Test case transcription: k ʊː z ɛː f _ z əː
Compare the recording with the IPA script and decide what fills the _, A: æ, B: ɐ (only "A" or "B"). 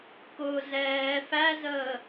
A